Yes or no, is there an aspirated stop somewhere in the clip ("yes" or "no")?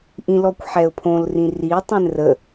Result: yes